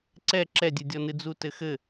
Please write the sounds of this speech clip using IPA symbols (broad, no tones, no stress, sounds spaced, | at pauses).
ǀ ɛ ǁ ɛ dʲ ɨ dʲ ɔ n ɨ d͡z u t ɘ x ɘ